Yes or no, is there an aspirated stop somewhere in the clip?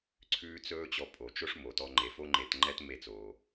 yes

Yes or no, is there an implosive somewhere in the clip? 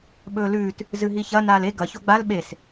yes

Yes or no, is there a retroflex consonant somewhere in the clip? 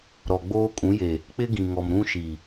no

